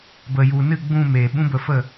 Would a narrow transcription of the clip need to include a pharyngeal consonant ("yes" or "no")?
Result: no